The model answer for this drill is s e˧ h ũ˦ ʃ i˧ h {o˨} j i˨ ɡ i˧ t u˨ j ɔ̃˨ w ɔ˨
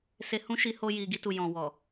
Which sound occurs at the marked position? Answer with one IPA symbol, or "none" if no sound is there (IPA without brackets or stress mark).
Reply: o˧